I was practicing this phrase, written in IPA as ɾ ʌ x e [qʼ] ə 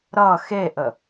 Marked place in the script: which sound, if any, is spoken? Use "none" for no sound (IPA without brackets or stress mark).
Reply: ʔ